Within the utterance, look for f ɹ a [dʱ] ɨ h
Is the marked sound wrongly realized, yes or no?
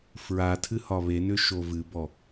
yes